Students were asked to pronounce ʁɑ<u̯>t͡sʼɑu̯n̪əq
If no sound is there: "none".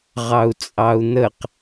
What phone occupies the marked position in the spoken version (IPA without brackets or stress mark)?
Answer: u̯